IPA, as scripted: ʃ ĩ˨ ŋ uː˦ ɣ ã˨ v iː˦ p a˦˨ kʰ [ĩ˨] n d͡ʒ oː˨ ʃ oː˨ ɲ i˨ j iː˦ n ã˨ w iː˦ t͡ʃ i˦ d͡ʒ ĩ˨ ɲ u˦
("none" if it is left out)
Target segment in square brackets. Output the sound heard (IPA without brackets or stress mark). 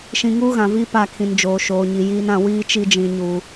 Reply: ĩ˨